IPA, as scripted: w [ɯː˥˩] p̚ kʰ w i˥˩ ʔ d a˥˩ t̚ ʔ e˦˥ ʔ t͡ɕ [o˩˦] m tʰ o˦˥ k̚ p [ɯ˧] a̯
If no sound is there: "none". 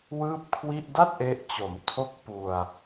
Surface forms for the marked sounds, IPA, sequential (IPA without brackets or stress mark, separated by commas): ɯː˥˩, o˩˦, u˧